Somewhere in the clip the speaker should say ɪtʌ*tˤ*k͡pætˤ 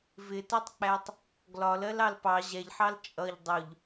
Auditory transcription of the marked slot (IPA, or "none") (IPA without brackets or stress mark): tˤ